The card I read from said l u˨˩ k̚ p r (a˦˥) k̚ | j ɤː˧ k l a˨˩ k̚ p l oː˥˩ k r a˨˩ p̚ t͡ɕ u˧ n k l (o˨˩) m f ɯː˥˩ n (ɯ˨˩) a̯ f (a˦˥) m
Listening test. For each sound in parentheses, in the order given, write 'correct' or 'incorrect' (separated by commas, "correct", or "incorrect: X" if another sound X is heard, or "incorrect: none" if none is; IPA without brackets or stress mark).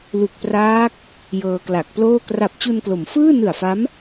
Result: incorrect: aː˦˥, incorrect: o˩˦, correct, correct